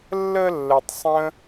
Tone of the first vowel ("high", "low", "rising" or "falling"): high